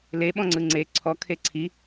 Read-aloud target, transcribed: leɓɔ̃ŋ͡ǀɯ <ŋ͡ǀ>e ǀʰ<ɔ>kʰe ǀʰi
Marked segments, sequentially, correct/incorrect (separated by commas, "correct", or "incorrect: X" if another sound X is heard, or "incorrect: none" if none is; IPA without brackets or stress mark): correct, correct